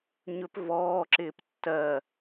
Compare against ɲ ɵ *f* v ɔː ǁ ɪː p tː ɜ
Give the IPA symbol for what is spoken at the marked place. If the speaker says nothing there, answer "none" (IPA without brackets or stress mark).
p